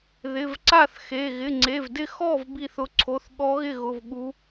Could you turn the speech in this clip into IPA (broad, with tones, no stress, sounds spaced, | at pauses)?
ð ɪ˩˧˩ v ǀ a˥˨ θ x e˩˧˩ ɣ ɪ˩˧˩ ŋ͡ǀ e˩˧˩ v d ɪ˥˨ x ɔ˥˨ v b i˥˨ θ ʊ˧˥ ǀʰ o˩˧˩ θ ɠ ɔ˧˥ ɣ ɪ˥˨ ɣ ʊ˩˧˩ v ɠ u˧˥